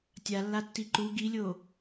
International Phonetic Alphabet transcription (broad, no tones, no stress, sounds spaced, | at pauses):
tʲ a lː a tː i ǃ u ɡ i lʲ o